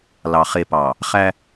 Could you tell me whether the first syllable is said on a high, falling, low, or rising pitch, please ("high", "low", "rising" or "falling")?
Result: low